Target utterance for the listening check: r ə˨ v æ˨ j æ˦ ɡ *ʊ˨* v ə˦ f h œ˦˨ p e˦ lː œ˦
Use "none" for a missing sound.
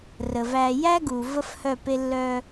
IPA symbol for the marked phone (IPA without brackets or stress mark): u˨